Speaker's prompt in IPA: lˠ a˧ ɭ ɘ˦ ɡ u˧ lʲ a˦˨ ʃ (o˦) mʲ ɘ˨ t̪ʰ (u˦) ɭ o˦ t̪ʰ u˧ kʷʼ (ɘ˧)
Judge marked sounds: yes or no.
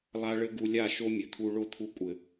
yes, no, no

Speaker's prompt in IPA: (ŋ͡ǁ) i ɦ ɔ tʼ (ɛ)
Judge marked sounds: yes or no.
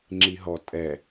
yes, yes

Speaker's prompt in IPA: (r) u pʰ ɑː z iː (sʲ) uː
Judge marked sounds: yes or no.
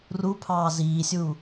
yes, yes

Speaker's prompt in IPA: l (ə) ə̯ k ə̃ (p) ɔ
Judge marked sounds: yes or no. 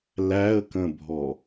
no, no

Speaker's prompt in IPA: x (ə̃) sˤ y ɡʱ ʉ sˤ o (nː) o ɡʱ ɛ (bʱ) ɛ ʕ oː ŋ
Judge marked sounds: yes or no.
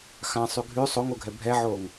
no, no, yes

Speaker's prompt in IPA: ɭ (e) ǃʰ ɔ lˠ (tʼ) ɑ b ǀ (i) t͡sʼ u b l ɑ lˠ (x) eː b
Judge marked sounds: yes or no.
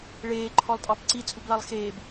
no, yes, yes, yes

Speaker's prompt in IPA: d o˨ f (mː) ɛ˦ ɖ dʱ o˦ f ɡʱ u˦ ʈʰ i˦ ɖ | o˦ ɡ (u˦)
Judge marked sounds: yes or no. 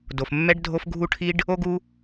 yes, yes

